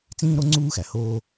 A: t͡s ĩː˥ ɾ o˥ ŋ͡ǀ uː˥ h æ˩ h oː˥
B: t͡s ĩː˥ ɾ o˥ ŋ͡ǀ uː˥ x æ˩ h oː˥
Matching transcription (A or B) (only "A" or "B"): B